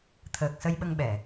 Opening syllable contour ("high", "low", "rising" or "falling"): low